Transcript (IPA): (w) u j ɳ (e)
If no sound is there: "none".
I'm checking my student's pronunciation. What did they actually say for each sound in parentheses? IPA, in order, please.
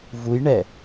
v, ɛ

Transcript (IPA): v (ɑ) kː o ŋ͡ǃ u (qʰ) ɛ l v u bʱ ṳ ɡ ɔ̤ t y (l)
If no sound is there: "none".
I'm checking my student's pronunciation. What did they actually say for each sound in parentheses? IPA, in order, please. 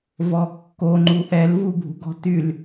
ɔ, ʔ, l

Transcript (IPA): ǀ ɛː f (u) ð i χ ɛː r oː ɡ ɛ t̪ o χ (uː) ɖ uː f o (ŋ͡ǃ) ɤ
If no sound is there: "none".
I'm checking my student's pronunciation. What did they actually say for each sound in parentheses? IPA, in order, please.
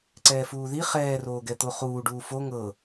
uː, uː, ŋ

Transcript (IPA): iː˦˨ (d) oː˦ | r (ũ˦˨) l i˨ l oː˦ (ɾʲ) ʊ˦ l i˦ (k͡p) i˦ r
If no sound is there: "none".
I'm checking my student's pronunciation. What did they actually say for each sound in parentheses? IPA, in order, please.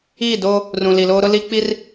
d, ũ˨, ɾ, k͡p

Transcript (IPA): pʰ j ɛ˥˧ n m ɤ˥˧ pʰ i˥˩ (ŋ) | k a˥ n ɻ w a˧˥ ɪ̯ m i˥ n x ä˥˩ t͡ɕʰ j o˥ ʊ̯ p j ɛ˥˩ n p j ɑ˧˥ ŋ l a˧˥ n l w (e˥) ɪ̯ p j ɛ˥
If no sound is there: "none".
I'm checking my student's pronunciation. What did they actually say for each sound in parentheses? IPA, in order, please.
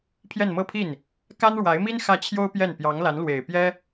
n, e˨˩

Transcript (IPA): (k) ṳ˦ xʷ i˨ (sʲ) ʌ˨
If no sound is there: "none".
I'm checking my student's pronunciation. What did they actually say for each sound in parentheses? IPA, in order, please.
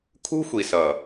kʰ, s

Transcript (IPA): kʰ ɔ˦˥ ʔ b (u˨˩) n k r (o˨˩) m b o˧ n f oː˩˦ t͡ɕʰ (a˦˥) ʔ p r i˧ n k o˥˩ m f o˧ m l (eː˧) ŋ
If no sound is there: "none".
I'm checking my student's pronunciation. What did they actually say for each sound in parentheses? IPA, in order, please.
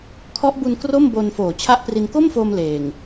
u˧, o˥˩, a˦˥, eː˨˩

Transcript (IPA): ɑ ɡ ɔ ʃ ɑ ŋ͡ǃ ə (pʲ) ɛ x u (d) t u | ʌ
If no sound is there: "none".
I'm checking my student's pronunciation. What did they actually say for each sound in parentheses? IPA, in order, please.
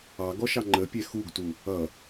pʲ, ɡ

